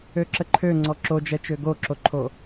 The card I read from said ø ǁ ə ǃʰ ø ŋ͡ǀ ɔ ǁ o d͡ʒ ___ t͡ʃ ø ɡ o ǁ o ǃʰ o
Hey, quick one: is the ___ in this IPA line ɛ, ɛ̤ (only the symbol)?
ɛ